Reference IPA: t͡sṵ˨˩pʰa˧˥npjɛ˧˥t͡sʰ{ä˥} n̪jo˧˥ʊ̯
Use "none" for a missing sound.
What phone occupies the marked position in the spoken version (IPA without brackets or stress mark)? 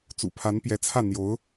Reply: ä˥˩